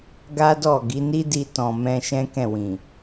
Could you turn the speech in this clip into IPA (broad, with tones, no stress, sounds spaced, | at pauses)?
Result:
ɡ a˦ d ɔ˦˨ ɡ i˨˦ n i˦ d i˧ t ɔ̃˨ m ɛ̃˧ ʃ ɛ̃˦ k ɛ̃˦˨ w ĩ˨